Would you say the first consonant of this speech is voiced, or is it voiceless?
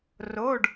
voiced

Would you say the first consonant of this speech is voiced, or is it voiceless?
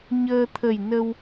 voiced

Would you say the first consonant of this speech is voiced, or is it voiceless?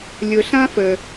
voiced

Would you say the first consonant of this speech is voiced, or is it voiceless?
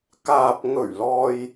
voiceless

